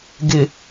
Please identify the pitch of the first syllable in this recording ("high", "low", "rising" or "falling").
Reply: low